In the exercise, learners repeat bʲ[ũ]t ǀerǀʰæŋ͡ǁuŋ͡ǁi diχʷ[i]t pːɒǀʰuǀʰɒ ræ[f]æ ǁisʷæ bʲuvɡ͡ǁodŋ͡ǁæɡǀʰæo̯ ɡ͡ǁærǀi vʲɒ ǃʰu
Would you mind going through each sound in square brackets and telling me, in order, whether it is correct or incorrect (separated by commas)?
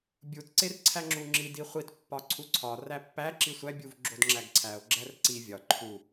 incorrect, correct, incorrect